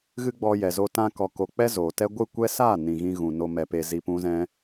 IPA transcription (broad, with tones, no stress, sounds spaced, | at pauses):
ɣ ɨ˦ ɡ͡b ɔ˧ j ɛ˨ z o˧ t ã˧ k ɔ˨ k o˨ k͡p ɛ˦ z oː˨ t ɛ˦ ɡʷ ɨ˦˨ kʷ ɛ˦ s aː˦˨ n ĩ˨ ɣ ĩ˧ ɣ ũ˨ n o˧ m ɛ˨ p e˧ z i˧ p ũ˦ z ɛ̃˦